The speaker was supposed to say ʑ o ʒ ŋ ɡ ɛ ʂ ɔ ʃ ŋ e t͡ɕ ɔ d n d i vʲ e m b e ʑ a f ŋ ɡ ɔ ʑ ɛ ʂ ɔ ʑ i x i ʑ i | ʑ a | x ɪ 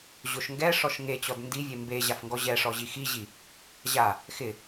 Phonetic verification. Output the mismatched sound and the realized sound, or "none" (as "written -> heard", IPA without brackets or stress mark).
ʒ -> ʃ